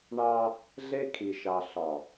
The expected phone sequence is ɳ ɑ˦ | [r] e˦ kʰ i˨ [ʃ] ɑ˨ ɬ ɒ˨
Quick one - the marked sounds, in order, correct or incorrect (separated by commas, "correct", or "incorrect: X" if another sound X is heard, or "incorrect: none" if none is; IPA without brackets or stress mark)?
incorrect: ɮ, correct